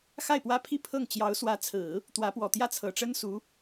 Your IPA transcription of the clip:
x a˥˩ ɪ̯ p w ä˥ pʰ i˥ pʰ ɤ˥˩ ŋ t͡ɕ j ɑ˧˥ ʊ̯ s w ä˧˥ t͡sʰ ɹ̩˨˩˦ | t̪ w ä˧˥ p w ɔ˨˩ t̪ j ä˥˩ t͡sʰ ɤ˨˩ ʈ͡ʂ ə˥ n s u˧˥

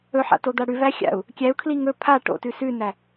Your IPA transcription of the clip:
ɵ ħ a̰ t o d̪ a ɽ ʉ v æ xʲ a̰ u̯ | kʲ æ u̯ kʰ l i ŋ ɵ pʰ a ʈ o̰ t ʉ s ʉ n æ

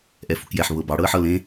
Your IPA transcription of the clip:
ʔ ɛ f u k j ɛ ħ β ɤ b ɑ ɽ ɤ ə̯ ħ ɤ l ẽ

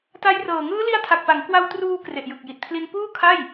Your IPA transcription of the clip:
t a˦˥ j r ɤː˨˩ ŋ ɯː˦˥ l i˦˥ a̯ tʰ a˨˩ k̚ p a˩˦ ŋ k w a˧ w t r uː˧ k r e˨˩ ʔ j ɯ˨˩ k̚ j i˨˩ t̚ pʰ l i˧ n p uː˥˩ kʰ a˥˩ j

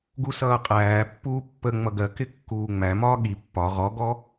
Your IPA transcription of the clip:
ɡ u s ʌː qʼ æː pː uː pː ə ŋ͡m ʌ ɡ ɜ k ɪ kː uː ŋ͡m æ m ɒː ɠ i pː ɒ ʁ ɔ ɡ ɔ

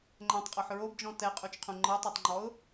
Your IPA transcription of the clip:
ŋ͡ǃ ɛ̃ tˤ qʼ ɔ ħ ɹ o b d͡ʒ ɔ̃ t ɛ qʼ u t͡ʃ qʰ ũ ŋ͡ǃ ɤ tˤ u tˤ ŋ͡ǃ ɔ ʊ̯

